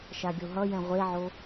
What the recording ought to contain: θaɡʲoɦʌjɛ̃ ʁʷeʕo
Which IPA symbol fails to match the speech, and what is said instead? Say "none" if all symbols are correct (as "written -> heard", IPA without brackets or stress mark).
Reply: θ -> ʃ